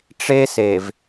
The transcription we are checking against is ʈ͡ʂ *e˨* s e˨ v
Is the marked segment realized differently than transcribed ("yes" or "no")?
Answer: yes